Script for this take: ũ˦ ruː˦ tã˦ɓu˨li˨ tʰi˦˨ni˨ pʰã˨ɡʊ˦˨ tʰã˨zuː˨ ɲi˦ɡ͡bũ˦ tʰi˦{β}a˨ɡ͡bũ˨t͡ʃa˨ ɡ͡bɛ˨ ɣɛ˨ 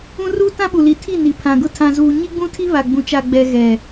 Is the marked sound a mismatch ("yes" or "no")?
no